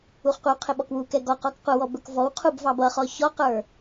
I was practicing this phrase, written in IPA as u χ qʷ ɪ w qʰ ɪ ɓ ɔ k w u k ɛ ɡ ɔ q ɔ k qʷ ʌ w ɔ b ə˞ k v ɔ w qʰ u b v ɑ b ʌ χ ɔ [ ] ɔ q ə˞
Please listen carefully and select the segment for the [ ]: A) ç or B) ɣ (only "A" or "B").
A